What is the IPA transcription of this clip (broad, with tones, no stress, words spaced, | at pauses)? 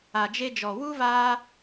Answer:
a˨d͡ʒe˧d͡ʒɔ˨wu˦ vaː˧